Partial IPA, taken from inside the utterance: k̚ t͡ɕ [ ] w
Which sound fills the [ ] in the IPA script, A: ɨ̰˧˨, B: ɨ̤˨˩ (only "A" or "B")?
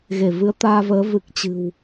B